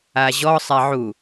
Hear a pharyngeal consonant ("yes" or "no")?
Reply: yes